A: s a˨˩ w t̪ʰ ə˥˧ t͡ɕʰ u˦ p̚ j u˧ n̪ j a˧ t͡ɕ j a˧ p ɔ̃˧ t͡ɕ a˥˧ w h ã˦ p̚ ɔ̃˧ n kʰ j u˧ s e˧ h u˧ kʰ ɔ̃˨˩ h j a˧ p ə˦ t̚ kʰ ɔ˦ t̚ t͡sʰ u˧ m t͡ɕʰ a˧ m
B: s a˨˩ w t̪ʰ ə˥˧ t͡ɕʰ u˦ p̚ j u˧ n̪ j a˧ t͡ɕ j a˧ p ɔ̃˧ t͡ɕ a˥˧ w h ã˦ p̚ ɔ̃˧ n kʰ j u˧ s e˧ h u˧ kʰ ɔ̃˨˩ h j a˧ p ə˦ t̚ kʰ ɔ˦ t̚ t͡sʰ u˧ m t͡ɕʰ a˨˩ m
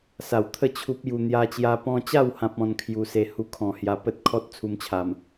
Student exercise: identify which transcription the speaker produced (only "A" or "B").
B